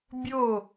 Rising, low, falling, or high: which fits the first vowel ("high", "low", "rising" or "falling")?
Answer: falling